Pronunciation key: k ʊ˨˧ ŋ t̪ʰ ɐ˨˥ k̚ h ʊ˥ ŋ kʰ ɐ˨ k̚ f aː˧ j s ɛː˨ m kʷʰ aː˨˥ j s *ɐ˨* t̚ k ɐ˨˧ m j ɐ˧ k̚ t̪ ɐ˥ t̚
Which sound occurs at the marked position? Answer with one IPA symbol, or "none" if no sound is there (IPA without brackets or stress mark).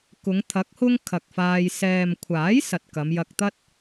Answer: ɐ˨